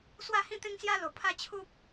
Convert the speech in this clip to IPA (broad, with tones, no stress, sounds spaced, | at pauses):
s w a˥˧ h ĩ˥˧ t̪ ẽ˦ ŋ s j a˦ l o˨˩ pʰ a˥˧ t͡ɕʰ u˦ p̚